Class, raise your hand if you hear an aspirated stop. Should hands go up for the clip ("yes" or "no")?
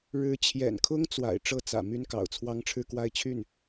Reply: yes